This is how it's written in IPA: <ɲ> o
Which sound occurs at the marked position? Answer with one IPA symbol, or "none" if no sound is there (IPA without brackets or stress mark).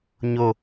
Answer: ɲ